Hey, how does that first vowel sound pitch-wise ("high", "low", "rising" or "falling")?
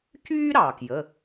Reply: high